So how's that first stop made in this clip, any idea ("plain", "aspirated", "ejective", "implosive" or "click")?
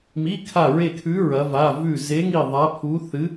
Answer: aspirated